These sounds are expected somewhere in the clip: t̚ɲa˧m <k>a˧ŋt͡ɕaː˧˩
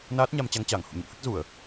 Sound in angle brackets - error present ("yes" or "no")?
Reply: yes